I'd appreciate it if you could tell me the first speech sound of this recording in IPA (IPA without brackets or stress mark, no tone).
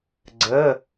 ɡ͡ǀ